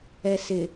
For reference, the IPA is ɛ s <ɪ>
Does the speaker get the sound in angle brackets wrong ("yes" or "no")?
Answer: no